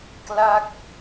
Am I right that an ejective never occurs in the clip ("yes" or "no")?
yes